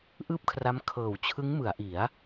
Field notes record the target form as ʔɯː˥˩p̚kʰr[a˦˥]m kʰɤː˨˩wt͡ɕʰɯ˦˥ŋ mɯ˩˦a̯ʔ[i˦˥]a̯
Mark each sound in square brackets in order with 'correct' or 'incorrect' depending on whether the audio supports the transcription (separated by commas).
correct, incorrect